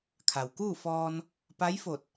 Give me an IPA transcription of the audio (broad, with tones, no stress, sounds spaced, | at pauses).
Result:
kʰ a˩ w k uː˥˨ f ɔː˧ n | p a˧˥ j f o˧˩ t̚